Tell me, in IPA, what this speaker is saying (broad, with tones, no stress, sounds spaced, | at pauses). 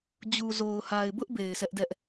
d͡ʑ u˨ z o˨ ʊ̯ h a˨ ɪ̯ b ʊ˦ ʔ b e˨ ɪ̯ sʰ ɛ˦ ʔ d ɛ˦ ʔ